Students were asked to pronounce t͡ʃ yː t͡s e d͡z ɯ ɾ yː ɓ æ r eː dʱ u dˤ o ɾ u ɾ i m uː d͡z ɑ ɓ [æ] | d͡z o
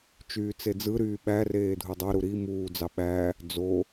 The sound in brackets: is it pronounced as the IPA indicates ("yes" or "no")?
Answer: yes